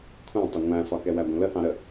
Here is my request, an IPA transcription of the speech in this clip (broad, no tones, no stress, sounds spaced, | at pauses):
kʷʰ æ̃ tˤ ʊ ŋʷ æ̃ f ɒ k ɛ w æ ɡʷ ə̃ l ə h ɑ̃ ɾ ə